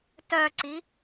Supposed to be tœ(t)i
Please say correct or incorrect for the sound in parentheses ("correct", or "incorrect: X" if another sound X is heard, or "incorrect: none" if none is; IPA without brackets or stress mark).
incorrect: ǀ